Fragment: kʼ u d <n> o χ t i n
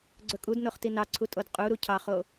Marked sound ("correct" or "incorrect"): correct